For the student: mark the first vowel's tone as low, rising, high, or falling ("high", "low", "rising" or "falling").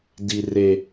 low